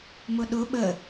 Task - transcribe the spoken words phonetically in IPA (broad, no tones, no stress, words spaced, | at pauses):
mʊɗʊ ɓə